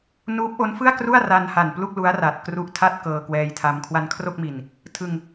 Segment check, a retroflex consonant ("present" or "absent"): absent